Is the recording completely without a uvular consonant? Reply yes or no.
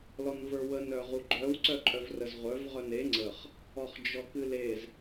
no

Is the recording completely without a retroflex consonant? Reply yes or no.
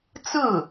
yes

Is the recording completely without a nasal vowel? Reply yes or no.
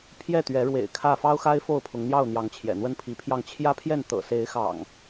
yes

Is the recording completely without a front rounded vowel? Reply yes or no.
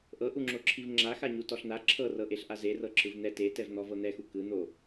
yes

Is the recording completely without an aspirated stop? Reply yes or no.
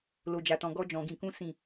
yes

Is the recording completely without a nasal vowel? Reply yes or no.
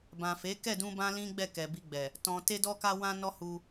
no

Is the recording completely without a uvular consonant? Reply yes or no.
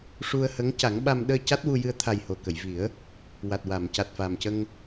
yes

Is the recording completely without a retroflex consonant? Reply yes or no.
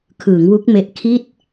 yes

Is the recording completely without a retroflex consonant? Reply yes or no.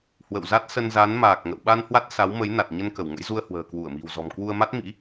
yes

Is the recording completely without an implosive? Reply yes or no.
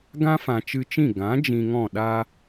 no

